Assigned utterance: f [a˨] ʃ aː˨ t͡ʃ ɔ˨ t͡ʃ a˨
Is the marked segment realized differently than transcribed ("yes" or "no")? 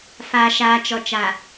no